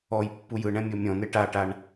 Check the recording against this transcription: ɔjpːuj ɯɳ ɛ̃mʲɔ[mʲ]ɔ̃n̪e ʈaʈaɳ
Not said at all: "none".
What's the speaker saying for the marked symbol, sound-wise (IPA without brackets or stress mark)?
mʲ